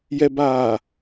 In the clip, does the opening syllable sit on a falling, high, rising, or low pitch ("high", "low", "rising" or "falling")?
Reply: low